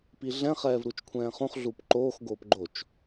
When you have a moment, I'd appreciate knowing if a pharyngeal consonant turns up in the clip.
no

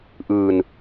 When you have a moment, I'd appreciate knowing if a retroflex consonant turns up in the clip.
no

